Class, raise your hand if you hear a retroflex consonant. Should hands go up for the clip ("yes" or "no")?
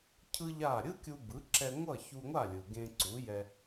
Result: no